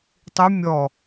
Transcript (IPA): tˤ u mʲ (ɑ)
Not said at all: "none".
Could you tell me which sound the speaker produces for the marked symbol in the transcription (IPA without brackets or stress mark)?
ɔ